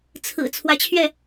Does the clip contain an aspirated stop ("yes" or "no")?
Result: yes